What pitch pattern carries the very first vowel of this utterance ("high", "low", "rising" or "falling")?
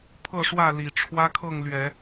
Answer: falling